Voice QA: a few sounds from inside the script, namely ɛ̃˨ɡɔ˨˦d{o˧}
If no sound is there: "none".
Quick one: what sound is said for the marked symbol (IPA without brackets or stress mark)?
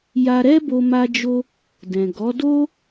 o˦